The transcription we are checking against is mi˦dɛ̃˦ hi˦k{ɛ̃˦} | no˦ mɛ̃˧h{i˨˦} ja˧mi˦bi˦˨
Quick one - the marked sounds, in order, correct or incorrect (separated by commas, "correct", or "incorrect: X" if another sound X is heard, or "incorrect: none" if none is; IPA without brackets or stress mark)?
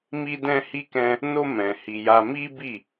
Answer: correct, incorrect: i˧